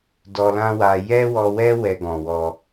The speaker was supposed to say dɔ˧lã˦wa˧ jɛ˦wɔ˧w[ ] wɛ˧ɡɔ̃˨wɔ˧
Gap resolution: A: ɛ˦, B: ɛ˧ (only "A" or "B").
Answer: A